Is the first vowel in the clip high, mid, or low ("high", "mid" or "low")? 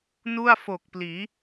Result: high